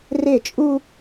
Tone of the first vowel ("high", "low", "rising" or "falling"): falling